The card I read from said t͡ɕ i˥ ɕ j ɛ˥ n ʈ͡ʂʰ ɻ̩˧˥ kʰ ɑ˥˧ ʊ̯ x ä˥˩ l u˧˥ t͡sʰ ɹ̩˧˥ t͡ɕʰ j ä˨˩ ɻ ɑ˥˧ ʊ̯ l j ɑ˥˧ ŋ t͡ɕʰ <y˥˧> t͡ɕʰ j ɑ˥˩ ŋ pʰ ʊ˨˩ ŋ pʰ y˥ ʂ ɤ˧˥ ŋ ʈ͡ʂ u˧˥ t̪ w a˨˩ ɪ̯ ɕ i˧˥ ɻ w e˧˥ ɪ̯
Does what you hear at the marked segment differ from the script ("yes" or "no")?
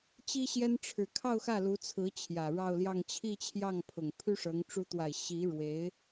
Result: yes